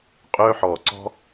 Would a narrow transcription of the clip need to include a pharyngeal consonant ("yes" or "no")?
yes